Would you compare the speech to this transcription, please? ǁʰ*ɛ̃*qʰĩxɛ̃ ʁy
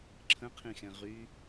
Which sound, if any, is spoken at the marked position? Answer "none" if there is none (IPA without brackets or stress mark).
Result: ə̃